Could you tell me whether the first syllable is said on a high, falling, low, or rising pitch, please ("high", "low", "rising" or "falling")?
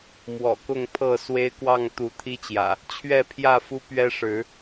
low